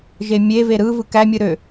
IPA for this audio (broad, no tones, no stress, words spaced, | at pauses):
ʒemʲeve ɾɯvɯ kæmʲɯ ɾø